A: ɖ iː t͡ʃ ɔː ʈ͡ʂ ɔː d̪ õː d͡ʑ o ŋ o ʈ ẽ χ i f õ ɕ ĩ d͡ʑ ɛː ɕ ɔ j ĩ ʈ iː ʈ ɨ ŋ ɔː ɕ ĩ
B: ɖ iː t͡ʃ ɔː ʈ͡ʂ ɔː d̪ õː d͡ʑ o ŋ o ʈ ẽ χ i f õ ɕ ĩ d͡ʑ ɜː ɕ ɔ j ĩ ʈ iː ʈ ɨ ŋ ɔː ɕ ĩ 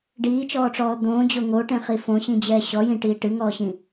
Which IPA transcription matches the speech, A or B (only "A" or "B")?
A